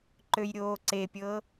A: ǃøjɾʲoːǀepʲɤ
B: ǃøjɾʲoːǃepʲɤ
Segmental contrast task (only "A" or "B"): A